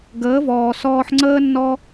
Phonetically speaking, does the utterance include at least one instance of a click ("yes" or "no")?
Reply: yes